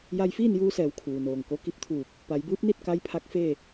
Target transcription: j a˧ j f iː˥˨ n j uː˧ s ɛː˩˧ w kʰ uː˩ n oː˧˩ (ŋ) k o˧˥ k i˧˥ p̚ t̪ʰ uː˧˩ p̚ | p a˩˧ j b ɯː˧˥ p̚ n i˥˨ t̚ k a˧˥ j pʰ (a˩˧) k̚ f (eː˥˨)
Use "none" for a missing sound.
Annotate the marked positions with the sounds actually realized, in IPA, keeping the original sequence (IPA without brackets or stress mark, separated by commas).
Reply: ŋ, a˧˥, eː˥˨